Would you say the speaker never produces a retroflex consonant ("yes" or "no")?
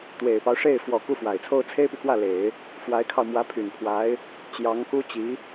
no